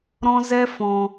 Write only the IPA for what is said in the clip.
ɾ ɔ̃˦ z ɛ˦ f ɔ̃˧

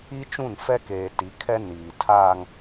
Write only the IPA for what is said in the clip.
i˦ t͡ʃ ũ˦˨ n f ɛ˦ k eː˨ t i˨˦ kʰ ɛ˦ n iː˨ tʰ aː˦ ŋ

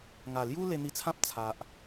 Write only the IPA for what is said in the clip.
ŋ a˨˩ l j u˦ l e˧ n̪ i˧ t͡sʰ ã˦ p̚ t͡sʰ a˨ ʔ

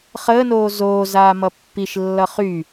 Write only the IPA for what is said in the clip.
χ əː n oː z oː z aː m ʌ pː i ʃ lː ʌ χ y

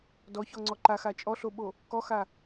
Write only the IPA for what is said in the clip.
d ɔ ç ɔ ŋ͡ǀ ɔ ǃ a x a t͡ʃʼ ɔ ɬ o ɓ o | k ɔ x a

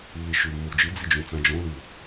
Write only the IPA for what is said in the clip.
lː i ʃ ʉ mː u d͡ʒ ɨ d͡z i d͡ʒ ũ t͡s ã d͡ʒ õ l ʉ

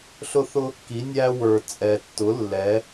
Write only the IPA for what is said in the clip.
ɬ ʊ˦ θ ʊ˦ | k i˩˥ nʲ æ˦ w ə˞˨˩ t͡sʼ ɛ˨˩ tː ʊ˩˥ lː ɛ˩˧

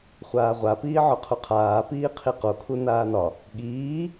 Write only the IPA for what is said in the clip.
χʷ aː ʁʷ a p iː ʕ ɒ qʰ u qʰ aː p iː qʰ i q o kʰ u n aː n ɒ | ɠ iː

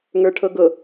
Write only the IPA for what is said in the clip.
ŋ ə˞ ʈʰ ɤ ɡ ɤ

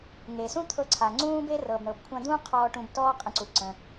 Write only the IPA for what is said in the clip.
ŋ e˩ s ũ˥ t̪ʰ ɤ˧ ǀʰ a˩ ŋ͡ǀ ũː˥ b e˥ r ɤ˩ b ɳ ɤ˩ b kʷʰ ã˧ d̪ ũː˥ qʰ ɔː˧ ʈ ũ˧ b t ɔː˥ qʼ ə̃˧ ǀ u˩ ǀ ə̃˩

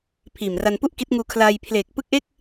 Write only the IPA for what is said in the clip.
pʰ iː˨˩ m r a˧ n p u˥˩ ʔ k i˦˥ t̚ ŋ uː˧ kʰ l aː˧ j pʰ l eː˨˩ k̚ p ɯ˦˥ k̚ ʔ e˥˩ k̚

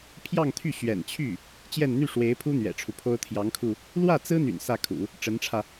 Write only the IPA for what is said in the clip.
pʰ j ɑ˥˧ ŋ t̪ʰ y˥˩ ɕ ɥ ɛ̰˨˩ n t͡ɕʰ y˥˩ | t͡ɕ j ɛ˥˧ n n̪ y˥˩ ʂ w e˧˥ ɪ̯ pʰ u˥ n̪ ɥ ɛ̰˨˩ ʈ͡ʂʰ u˦ pʰ o˥ ʊ̯ t̪ʰ j ɑ˧˥ ŋ kʰ u˧ | l w ä˥˩ t͡s ɹ̩˥ n̪ y̰˨˩ n s ä˥˩ kʰ ṵ˨˩˦ | ʈ͡ʂ ə˧˥ n ʈ͡ʂʰ ä˧

